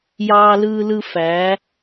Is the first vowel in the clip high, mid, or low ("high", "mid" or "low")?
low